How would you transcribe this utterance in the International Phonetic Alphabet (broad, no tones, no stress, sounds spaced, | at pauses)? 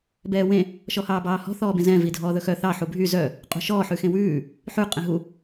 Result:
b ɛː w ẽ | ʃ ɔ h ɑː b ɑː h ɔ̤ θ ɔː b ẽ z ɛ̃ v i dʱ ɔː ð ɵ x œ θ ɑ ħ u bʱ y z œ | qʼ ṳ ʃ ɔː ħ ʉ x ẽ w ʉː | ħ ʉ qʼ ẽ ɦ u